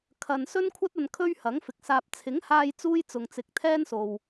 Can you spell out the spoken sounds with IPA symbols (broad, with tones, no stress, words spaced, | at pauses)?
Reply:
kʰɐ˧n sɵ˥nkʷʰɐ˥t̚ɐ˧n kʰɵ˥ɥhɐ˨˥ŋ fɪ˨k̚saː˧p̚ t͡sʰɪ˨˥ŋhaː˧j t͡suː˥jt͡sʊ˨ŋt͡sɪ˨k̚ t̪ʰɛː˥nso˨w